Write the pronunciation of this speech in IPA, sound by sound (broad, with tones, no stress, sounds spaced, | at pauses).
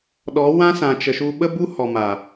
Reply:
ɗ ɔ˨˦ w ã˦ s ã˨ t͡ʃ ə˨ ʃ u˧ ɓ ə˦ b u˦ h ɔ˨ m a˨